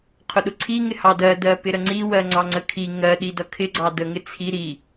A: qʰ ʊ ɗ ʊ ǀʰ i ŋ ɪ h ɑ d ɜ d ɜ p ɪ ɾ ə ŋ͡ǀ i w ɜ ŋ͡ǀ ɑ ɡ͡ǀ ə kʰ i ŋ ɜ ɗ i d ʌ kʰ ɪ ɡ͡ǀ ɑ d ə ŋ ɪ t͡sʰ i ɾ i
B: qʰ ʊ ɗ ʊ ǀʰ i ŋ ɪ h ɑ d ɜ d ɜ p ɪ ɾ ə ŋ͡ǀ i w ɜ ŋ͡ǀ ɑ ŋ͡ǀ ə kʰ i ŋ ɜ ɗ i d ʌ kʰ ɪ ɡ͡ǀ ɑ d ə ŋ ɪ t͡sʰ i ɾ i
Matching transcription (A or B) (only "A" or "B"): B